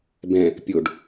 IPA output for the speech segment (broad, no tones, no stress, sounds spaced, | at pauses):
b ɛ̃ | pʲ o ɖ